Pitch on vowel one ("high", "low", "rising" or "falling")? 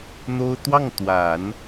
high